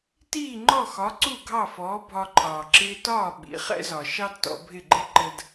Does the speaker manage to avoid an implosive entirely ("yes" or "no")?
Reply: no